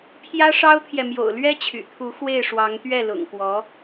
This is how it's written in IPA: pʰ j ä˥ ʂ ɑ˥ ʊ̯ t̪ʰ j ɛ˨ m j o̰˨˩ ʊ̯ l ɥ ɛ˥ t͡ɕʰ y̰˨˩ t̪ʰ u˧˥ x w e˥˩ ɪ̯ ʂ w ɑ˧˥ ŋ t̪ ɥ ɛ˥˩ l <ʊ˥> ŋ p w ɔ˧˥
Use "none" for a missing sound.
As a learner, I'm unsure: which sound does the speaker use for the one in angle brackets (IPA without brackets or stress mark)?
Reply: ʊ̰˨˩